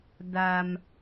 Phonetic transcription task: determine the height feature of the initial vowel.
low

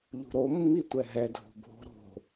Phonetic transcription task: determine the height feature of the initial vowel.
high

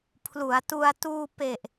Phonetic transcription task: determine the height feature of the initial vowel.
high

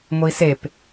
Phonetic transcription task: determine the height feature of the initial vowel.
high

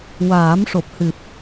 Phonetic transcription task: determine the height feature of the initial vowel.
low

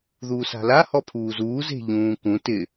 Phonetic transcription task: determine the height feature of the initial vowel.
high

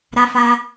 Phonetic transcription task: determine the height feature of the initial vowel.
low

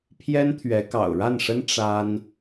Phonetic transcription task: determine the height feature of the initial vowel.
mid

